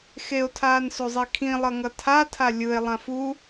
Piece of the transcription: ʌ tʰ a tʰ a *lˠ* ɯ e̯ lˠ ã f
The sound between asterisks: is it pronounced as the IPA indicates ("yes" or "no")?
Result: no